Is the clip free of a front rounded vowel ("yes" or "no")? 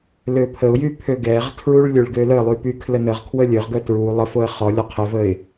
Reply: no